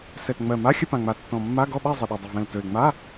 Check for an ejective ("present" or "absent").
absent